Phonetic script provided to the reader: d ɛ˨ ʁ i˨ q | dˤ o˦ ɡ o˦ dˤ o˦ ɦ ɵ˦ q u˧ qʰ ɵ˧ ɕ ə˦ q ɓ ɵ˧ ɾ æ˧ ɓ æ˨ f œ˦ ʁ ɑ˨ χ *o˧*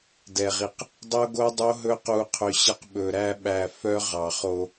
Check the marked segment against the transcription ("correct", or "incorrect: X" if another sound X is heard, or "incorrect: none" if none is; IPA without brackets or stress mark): correct